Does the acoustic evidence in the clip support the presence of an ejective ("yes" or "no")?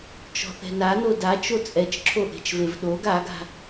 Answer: yes